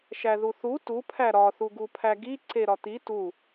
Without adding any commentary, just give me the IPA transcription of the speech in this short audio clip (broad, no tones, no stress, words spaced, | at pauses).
ʃæðuθu tu pʰæɾɒ θuɡupʰæɡi ǀeɾɒt̪i tu